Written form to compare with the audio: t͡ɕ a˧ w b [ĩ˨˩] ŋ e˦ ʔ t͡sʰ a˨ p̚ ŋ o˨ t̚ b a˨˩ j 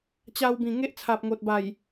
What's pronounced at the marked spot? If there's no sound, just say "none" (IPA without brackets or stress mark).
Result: ĩ˨˩